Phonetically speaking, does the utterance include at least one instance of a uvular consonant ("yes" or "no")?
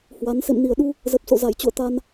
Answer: no